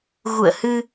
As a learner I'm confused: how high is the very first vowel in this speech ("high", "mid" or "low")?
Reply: high